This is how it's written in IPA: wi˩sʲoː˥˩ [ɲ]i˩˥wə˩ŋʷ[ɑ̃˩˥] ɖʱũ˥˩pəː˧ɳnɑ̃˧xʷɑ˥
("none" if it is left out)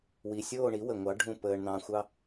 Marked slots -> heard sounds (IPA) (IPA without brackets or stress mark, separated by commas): ɳ, ɑ˩˥